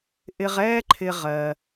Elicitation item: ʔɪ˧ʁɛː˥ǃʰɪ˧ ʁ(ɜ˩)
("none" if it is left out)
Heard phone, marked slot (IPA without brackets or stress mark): ɜ˩